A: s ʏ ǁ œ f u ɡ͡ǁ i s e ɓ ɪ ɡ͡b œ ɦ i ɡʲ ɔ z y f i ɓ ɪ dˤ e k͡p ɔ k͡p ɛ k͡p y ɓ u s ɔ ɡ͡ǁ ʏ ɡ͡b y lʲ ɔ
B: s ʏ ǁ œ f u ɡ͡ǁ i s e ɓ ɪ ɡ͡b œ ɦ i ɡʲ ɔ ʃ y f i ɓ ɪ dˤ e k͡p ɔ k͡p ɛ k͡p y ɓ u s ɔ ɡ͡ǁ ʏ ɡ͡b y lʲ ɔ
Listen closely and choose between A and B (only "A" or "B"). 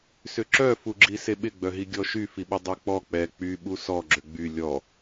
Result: B